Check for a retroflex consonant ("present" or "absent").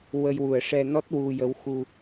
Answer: present